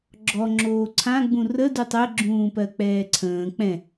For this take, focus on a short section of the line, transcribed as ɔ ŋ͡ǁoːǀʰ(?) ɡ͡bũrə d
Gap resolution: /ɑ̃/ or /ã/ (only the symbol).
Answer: ã